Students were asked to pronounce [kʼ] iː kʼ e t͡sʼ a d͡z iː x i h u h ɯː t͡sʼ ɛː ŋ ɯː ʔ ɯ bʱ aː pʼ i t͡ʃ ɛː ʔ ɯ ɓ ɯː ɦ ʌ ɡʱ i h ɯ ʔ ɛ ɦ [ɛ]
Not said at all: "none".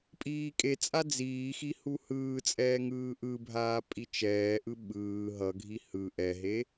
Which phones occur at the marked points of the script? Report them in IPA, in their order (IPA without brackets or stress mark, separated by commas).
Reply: pʼ, e